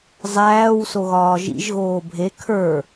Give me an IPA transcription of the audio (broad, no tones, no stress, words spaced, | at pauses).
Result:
zˤæːw soɣɒːʒḭʒ ɣoːbʱe kʰə˞